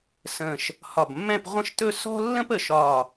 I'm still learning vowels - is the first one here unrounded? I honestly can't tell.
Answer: yes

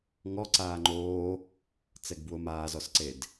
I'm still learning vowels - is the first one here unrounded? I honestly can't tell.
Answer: no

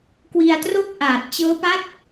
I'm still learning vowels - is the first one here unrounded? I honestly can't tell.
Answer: yes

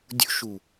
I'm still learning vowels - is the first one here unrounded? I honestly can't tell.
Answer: no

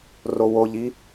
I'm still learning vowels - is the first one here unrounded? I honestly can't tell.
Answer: no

